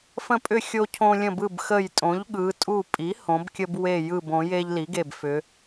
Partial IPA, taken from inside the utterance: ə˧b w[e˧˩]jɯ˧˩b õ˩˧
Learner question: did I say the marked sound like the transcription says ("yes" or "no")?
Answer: yes